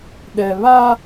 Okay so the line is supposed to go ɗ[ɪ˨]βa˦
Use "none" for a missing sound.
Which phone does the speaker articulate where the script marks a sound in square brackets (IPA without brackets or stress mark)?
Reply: ɛ˨